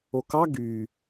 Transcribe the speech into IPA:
okɑ ɡyː

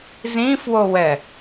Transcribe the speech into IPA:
zĩfwowɛ

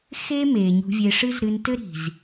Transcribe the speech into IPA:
xe˦me˨ ɲṳ˧vʲe˧ʂɨ˦z ɾɨ˧ntɘ˦ɾi̤˨z

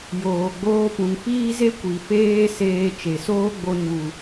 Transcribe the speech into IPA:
joː˨ɡ͡boː˧ pũ˨ŋfiː˦ze˦ kʷi˨feː˦seː˧ t͡ʃe˨soː˦ɡ͡bo˧ɲu˨

